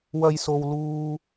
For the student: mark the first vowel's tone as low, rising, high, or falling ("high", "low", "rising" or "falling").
low